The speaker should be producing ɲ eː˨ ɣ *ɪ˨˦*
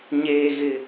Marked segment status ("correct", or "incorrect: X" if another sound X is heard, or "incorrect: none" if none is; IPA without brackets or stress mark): incorrect: ɪ˨